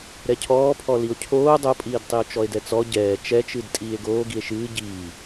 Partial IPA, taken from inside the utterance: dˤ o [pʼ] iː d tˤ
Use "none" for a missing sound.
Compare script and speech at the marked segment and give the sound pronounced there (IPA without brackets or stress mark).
pʼ